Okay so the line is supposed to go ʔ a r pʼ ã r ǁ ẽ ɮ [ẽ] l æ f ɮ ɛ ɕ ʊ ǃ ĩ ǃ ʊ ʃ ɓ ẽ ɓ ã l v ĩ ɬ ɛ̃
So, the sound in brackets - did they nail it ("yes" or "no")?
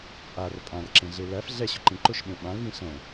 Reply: no